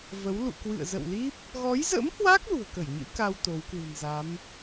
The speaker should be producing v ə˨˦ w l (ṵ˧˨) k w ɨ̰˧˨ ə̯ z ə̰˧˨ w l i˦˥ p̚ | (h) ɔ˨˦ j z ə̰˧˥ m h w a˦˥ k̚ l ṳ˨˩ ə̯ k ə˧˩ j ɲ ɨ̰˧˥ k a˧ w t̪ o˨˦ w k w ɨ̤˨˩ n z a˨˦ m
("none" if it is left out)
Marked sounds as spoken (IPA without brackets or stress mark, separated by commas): ṵ˧˨, ɣ